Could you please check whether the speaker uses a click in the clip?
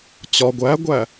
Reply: no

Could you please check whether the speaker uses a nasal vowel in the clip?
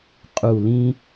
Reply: yes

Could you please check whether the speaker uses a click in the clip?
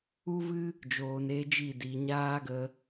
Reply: no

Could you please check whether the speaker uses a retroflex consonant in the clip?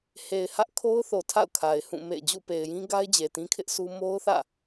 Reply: no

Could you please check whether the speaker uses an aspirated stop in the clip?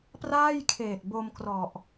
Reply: yes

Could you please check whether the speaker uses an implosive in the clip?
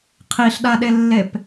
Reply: yes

